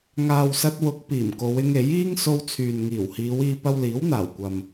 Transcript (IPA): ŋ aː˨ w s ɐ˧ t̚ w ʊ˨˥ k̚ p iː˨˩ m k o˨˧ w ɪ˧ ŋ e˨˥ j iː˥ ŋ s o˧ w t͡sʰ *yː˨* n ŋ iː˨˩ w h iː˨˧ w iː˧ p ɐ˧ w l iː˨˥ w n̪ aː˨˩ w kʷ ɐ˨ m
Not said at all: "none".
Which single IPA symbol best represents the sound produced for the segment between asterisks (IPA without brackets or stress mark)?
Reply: yː˨